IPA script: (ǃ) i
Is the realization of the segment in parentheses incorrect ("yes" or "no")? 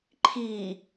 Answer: yes